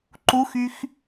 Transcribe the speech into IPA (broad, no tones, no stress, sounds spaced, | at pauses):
ǃ u x y x